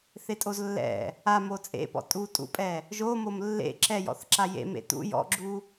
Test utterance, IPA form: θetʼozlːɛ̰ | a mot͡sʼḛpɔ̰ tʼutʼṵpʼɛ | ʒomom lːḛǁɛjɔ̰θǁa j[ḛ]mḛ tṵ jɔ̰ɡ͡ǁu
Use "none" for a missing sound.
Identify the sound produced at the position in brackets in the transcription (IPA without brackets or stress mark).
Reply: ḛ